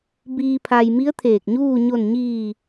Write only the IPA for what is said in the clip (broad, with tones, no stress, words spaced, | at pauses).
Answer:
biː˩pʰa˩j mi˧˥ə̯t̪ʰeː˧˩k̚ɲuː˥˨ ɲo˧˩nɲiː˧˩